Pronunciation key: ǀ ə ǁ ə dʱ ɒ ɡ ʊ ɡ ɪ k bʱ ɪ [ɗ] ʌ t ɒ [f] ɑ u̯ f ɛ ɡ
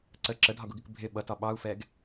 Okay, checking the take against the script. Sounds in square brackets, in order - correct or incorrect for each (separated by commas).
incorrect, incorrect